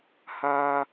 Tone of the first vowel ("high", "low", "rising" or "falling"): high